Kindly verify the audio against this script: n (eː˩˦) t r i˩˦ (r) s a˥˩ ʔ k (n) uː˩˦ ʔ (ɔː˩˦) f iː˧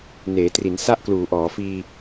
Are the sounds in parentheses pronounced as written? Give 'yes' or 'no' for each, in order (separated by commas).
yes, no, no, yes